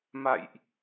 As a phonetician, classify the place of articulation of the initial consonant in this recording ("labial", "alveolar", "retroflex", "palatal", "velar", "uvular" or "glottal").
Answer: labial